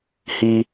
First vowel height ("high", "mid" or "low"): high